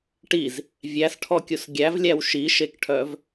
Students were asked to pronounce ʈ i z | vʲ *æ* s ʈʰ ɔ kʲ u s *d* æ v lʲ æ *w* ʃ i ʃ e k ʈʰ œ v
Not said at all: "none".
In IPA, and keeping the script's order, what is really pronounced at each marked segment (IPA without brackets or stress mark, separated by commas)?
æ, ɡʲ, w